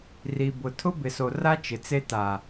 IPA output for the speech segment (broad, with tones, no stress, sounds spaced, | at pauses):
r i˨ b ʊ˨ tʰ ʊ˦ b ɪ˨ s o˨ r a˦ t͡ʃ ɪ˨ t͡s e˦ t a˨